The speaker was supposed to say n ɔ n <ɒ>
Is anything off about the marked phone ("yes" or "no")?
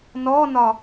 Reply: no